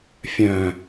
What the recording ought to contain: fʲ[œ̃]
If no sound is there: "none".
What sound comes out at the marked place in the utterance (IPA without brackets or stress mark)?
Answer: œ̃